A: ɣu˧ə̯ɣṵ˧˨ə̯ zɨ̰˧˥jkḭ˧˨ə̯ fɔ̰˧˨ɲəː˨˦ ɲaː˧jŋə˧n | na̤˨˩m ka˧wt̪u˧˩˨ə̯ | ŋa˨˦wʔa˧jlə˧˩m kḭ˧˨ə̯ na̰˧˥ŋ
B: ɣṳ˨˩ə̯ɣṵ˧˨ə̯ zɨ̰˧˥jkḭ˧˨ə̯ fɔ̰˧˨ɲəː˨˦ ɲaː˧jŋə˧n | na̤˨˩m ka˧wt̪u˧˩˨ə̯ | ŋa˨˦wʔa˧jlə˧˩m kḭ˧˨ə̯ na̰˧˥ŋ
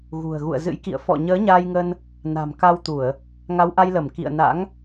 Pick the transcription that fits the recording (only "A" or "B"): B